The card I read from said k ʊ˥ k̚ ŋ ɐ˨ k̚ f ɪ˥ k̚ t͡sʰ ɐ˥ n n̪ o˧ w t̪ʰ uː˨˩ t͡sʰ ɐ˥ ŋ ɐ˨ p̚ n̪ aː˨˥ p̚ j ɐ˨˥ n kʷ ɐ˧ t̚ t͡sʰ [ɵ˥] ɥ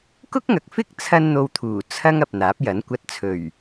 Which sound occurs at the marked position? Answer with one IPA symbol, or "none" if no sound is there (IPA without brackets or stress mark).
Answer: ɵ˨˩